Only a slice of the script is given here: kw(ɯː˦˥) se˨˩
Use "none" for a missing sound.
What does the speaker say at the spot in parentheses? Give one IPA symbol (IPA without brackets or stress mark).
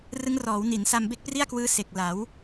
ɯː˦˥